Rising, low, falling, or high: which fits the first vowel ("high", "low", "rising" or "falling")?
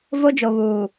high